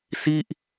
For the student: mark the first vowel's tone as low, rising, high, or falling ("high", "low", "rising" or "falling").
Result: falling